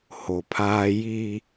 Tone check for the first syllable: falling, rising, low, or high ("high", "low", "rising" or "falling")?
low